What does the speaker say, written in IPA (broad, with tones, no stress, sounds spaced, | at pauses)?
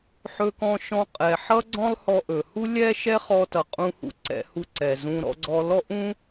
ħ ɵ˧ k ɔ̃˧ ʃ ɔ̃˧ qʼ ɛ˩ ħ ʌ˥ ɡ͡ǀ ɔ̃˥ lˠ h ɔ˧ ʔ ɵ˩ h u˥ lʲ ɛ˥ ʃ ɛ˥ χ ɔ˧ t ʌ˩ qʼ ũ˧ h ṵ˧ ǀ ɛ̰˧ h u˧ ǀ ɛ˩ z ũ˧ ɾ ɔ̰˧ ɡ͡ǀ ɔ˧ l ɔ˥ ʔ ũ˥